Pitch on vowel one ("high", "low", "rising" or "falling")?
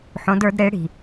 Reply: rising